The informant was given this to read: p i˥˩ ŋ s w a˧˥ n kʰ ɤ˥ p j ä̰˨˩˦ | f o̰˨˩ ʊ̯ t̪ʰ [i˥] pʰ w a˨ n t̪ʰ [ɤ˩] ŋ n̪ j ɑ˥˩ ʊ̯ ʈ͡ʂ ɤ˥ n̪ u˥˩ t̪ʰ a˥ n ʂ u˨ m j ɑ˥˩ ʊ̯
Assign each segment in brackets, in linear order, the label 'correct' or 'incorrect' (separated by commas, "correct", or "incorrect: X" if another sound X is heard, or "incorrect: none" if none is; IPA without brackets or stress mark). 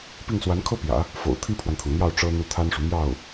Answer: correct, correct